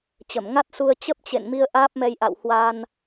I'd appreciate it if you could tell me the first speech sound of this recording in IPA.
t͡ɕ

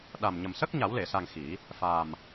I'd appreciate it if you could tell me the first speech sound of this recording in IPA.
ɗ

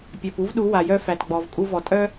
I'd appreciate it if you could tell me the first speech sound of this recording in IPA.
pʲ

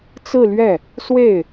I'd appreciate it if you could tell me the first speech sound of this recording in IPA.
t͡s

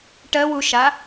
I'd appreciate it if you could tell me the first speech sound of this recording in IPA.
ʈ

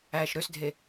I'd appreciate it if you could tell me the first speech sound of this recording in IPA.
æː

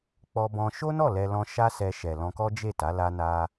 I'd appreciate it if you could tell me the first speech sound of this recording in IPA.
k͡p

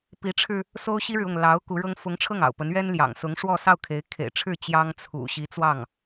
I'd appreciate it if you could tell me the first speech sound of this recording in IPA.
p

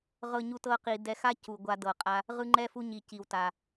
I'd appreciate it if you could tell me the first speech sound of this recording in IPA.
ʁ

